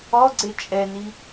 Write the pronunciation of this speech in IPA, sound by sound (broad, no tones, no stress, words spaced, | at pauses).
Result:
ɔɡ͡ǀe t͡ʃʼɛni